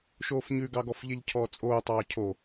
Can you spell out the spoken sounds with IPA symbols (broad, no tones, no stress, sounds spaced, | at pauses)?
ʃ oː f ɲ ʉ ɡ ɑ ɡ ɔ f ʎ e ʎ cʰ ɔː t͡sʼ oː tˤ ɑː cʰ o